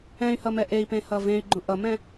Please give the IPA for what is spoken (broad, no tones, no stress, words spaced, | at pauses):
ɛ̃y̯hʌ mɛʔei̯pẽ hʌvẽy̯ɡ͡ǃũ ʔʌmɛ̃